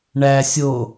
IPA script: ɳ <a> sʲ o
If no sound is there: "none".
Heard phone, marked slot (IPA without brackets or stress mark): æ